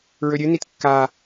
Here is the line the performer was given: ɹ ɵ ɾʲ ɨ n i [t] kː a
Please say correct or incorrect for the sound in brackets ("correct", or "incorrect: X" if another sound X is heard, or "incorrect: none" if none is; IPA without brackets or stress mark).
correct